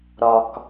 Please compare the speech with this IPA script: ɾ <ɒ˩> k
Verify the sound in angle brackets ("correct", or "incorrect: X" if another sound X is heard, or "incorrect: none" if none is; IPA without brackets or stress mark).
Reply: correct